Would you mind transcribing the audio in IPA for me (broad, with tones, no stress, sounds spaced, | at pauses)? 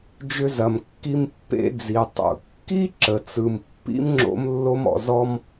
d͡ʒ ʏ˧ z ɐ˩ m kː i˧ m pː ḛ˧ d͡z i˩ tˤ ṵ˩ kː i˥ ǁ ə˩ t͡s ɯ˩ m pː ḭ˥ m ŋ͡ǁ o̰˥ m lː o˥ m ɔ̰˧ z ɔ˥ m